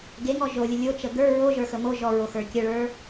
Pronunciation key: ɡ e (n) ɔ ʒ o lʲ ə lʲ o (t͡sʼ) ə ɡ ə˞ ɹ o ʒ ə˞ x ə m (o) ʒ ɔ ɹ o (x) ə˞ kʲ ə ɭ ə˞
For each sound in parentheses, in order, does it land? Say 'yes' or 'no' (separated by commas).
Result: no, no, yes, yes